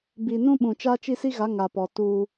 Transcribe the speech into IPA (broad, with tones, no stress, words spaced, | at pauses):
bi˨nũ˦ ɓũ˨ t͡ʃa˦t͡ʃi˦si˦ɣa˨˦ ŋa˨pɔ˨tuː˦